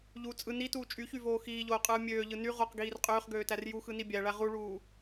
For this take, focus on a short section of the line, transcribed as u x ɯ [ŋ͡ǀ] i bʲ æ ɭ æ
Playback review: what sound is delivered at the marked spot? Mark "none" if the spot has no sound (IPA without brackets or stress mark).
n